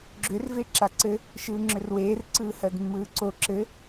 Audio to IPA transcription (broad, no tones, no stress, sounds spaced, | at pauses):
ɡ͡ǁ ʏ r v e ǁ a ǀ ɘ | ʃ ɯː ŋ͡ǁ ʏ r w eː r ǀ ɯː h ɜ d mː ɯː ǀ o ǁ ɘ